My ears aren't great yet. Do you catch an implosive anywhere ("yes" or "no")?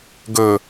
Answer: no